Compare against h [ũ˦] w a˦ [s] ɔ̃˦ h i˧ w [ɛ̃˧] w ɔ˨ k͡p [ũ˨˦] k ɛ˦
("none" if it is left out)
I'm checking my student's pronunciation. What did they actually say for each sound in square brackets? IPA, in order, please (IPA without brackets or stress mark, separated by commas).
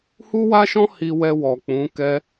u˦, ʃ, ɛ˧, ũ˨˦